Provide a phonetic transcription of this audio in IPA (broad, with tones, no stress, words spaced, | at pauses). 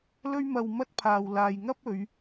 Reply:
lɵ˧ɥmɐ˨wmɐ˧t̚ pʰaː˨wlaː˨jŋɐ˥p̚ɵ˨˧ɥ